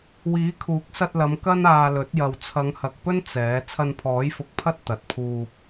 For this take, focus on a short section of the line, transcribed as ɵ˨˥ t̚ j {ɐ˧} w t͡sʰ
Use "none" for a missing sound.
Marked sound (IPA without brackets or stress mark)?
ɐ˨